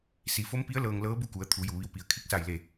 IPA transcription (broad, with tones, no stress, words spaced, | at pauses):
si˩˧fo˧˥mpi˧˥ə̯ lɤː˧ŋlɤː˧˥ bu˥˨ku˩˧ə̯ t̪ʰu˩˧ju˩ ʋi˧wpi˩˧ə̯ kʰi˧˥k̚sa˧˩jle˧˩